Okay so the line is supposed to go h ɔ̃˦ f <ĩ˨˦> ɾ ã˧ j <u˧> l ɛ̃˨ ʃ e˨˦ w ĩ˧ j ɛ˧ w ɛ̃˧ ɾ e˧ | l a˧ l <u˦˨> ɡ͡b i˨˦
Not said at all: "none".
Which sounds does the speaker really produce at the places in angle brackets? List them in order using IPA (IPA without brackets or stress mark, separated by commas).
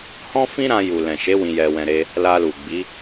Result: ĩ˦, u˨, u˨